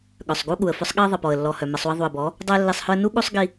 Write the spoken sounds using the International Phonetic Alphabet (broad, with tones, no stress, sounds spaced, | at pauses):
ɠ œ˨ sˤ ɡ u˦ ɠ u˨ ə̯ f œ˦ sˤ ɠ i˦ ə̯ ðˤ ɘ˨ p ɔ˨ ə̯ lː ɔ˨ h œ˨ m ɘ˧ sˤ u˧ ə̯ ðˤ u˨ ə̯ b ɔ˨˦ | dˤ œ˦ ə̯ lː i˧ sˤ h œ˦ ə̯ n u˦ ɠ u˦ sˤ ɡ i˧